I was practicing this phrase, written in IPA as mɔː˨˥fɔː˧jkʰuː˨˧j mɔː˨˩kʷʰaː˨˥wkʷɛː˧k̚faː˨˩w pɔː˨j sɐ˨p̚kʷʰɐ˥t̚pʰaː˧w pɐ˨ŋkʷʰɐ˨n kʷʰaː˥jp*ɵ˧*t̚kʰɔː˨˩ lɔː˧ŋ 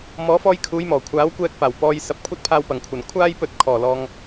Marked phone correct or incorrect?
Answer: correct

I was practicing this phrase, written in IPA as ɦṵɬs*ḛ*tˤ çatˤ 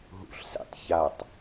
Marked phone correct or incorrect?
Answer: correct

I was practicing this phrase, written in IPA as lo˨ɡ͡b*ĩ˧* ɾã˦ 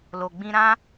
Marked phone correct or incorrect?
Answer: correct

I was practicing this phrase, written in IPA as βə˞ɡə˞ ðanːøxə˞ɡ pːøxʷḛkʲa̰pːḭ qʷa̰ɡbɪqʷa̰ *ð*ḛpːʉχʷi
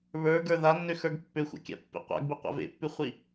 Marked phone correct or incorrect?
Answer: incorrect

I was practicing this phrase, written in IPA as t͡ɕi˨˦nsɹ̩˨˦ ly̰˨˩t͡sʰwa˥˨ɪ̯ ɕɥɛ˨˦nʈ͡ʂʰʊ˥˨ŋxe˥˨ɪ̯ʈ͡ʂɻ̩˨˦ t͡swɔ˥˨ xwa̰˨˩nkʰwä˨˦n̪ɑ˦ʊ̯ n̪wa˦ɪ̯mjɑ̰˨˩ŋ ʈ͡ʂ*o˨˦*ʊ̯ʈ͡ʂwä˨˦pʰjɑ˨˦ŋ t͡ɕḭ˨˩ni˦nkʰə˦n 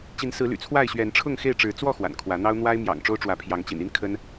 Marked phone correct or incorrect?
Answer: incorrect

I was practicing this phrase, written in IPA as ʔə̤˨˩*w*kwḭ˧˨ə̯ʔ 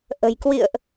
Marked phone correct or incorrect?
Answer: incorrect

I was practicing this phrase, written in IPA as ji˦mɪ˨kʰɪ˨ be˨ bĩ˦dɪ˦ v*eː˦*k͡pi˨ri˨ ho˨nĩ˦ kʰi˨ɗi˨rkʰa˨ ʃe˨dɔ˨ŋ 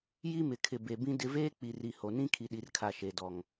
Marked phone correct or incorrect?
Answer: correct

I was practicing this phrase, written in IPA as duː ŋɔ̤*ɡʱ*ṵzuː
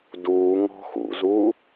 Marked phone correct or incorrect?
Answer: incorrect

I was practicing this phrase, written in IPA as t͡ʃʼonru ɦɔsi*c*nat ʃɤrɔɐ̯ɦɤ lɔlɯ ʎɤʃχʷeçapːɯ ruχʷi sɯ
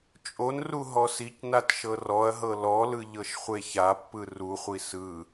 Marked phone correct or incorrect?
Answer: correct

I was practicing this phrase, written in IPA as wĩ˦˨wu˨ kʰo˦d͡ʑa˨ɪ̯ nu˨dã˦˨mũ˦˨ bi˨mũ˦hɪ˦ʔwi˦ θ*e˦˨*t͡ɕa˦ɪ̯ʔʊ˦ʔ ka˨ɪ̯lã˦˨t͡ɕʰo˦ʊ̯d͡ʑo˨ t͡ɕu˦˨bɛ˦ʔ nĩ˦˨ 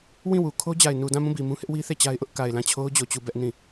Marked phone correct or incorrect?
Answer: correct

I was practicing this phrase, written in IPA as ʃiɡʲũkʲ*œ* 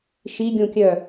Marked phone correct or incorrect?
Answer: correct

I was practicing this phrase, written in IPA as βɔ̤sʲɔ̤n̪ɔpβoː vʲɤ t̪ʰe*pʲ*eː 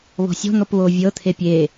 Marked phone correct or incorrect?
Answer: correct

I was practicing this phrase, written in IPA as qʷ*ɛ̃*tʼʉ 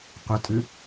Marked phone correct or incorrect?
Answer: incorrect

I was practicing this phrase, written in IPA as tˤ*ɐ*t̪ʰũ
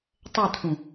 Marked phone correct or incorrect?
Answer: correct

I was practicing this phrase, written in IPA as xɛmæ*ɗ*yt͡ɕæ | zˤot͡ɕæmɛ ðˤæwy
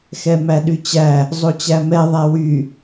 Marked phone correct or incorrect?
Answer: correct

